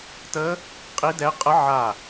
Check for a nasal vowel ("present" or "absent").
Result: absent